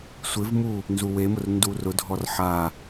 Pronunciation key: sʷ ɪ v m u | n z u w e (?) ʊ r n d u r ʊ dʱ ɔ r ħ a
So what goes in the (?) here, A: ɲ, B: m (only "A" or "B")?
B